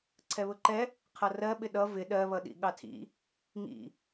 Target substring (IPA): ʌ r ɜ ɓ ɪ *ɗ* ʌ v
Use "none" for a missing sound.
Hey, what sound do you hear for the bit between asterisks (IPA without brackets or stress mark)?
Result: ɗ